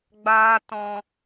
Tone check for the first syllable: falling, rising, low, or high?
high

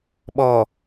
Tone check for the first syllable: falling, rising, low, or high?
low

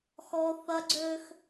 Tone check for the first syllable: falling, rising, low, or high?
high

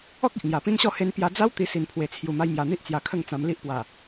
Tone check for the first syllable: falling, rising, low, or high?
high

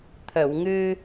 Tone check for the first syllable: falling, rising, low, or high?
low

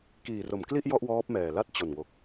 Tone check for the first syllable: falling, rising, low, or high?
low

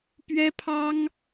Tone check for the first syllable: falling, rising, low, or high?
high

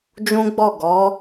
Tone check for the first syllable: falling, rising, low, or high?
high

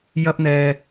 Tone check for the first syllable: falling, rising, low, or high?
high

